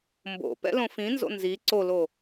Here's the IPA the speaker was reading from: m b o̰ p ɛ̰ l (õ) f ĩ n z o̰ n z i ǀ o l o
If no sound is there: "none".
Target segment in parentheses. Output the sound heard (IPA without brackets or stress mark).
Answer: õ